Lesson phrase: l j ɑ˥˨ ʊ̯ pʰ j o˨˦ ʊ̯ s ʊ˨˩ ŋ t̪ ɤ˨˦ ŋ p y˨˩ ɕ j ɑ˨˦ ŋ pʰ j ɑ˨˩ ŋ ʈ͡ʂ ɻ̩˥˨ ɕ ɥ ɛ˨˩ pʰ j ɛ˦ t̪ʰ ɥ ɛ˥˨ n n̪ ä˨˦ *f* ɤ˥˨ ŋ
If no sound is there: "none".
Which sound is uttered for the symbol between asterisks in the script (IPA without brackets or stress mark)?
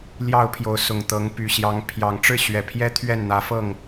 f